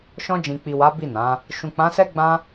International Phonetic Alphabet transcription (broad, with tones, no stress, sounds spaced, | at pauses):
ʃ ɔ̃˧ d͡ʒ ĩ˨ k͡p i˨ w a˨˦ b i˦˨ n ã˨˦ | ʃ ũ˨ k͡p ã˨˦ s ɛ˦ ɡ͡b ã˦